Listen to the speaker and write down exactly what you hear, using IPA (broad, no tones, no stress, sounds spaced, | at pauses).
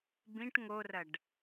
b ĩ ʈ ŋ o r ɐ ɖ